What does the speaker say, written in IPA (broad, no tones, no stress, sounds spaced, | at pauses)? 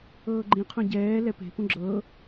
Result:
ɤː ɡ͡ǃ ĩ qʰ õ ɟ ɛː l ɛ p e̤ p ũ ɡ͡ǁ ɤː